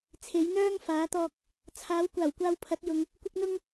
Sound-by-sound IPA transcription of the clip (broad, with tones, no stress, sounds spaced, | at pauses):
t͡sʰ e˨˥ j n̪ œː˥ ŋ f aː˨˥ t̪ ɔː˨ k̚ | t͡sʰ aː˨˥ w kʷ aː˨˩ w kʷ aː˨ w pʰ ɐ˨˥ t̚ j ʊ˨˧ ŋ | kʷ ɪ˧ k̚ n̪ ʊ˧ ŋ